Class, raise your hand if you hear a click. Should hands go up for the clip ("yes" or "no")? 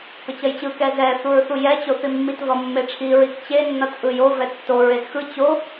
no